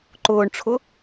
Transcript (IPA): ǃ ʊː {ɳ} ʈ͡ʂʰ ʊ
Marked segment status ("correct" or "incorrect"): correct